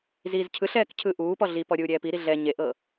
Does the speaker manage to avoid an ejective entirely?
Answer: yes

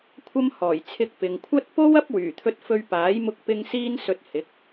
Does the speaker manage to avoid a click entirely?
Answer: yes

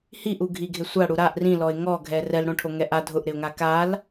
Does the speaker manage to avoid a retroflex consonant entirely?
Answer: no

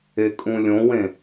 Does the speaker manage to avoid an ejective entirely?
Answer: no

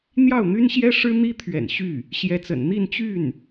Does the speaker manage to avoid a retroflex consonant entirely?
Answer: no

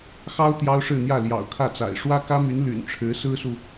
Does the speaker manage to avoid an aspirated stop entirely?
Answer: no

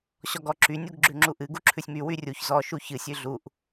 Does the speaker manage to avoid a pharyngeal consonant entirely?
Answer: yes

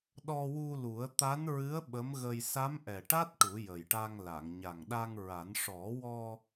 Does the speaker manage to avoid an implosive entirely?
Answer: no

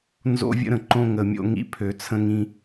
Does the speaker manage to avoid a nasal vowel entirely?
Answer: no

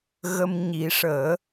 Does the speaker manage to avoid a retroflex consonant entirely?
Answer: no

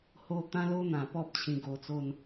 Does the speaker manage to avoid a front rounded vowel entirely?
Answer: yes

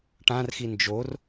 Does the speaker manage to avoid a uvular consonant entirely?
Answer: yes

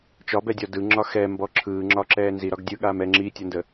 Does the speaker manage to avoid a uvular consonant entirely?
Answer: yes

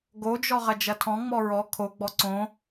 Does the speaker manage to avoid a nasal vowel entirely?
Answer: no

